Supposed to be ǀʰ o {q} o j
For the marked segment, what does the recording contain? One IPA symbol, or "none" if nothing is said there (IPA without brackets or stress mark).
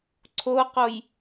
q